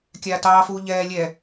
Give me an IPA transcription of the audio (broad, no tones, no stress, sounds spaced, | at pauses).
kʲ aː t ɑː f uː ʎ ɛː lʲ ɛ